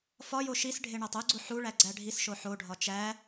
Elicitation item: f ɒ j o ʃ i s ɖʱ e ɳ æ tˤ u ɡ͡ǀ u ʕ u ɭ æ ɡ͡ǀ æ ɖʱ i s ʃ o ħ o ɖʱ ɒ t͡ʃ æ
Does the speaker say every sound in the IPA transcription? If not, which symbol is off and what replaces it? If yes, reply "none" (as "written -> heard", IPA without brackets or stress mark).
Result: ʕ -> ħ